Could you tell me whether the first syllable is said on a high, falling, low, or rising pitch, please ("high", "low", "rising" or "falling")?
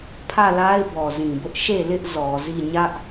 falling